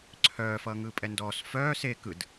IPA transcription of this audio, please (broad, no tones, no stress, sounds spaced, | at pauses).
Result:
ǀʰ œː f ʌː ŋ ɯː pʼ ɛ n d ɔː s f œː s e k ɯ d